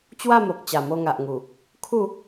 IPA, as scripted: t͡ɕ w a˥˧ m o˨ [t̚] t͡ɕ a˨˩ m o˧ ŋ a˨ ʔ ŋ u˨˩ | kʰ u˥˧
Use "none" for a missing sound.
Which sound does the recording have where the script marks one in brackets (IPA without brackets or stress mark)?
k̚